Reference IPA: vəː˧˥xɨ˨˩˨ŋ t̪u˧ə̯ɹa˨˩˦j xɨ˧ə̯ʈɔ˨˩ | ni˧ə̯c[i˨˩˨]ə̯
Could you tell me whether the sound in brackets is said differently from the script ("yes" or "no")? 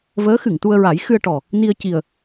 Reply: yes